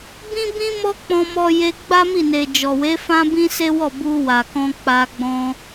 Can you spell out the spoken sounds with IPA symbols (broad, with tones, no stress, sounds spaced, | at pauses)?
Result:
b ĩ˦ b ĩ˦ m ɔ˦ k͡p ɔ̃˧ m ɔ˧ j e˧ ɡ͡b a˦ m i˦˨ n e˨ d͡ʒ ɔ˨ w e˨˦ f ã˦ b ĩ˦ s e˦ w ɔ˦˨ b u˧ w a˨ k ɔ̃˧ k͡p a˧ ɡ͡b ɔ̃˧